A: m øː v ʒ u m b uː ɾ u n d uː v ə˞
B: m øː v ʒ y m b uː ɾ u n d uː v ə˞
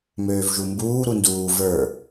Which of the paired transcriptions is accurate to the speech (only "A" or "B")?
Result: A